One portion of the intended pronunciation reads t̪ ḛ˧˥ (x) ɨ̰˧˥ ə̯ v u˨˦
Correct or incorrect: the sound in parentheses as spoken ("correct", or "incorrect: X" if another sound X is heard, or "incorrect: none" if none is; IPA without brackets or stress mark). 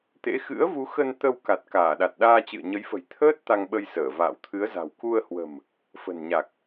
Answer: correct